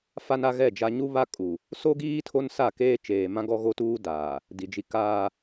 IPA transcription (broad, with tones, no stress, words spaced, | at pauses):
fa˦na˦ɣɛ˦˨d͡ʒa˦ ɲu˦βa˦ kʼu˨ | so˦ɡiː˦ tʰo˦nsa˦˨keː˦ t͡ʃeː˨mã˦ɡɔ˦ ɣo˦tuː˦daː˨ | di˨d͡ʒi˦ kaː˦